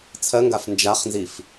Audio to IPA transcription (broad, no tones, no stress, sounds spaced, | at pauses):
t͡sʰ ɜ ŋ ɡ a f n d͡ʒ a χ n z i f